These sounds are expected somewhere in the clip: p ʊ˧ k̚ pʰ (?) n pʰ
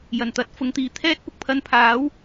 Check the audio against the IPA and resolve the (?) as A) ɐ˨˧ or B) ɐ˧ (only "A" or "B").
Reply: B